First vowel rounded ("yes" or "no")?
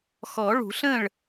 yes